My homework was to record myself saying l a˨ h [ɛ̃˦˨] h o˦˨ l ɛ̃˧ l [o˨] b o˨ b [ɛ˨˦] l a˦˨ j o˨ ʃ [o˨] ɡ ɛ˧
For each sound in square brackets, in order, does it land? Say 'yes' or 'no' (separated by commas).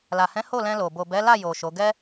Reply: no, yes, yes, no